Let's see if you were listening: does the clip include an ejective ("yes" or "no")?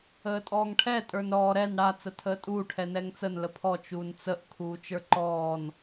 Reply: yes